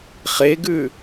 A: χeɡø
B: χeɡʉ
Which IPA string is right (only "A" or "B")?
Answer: B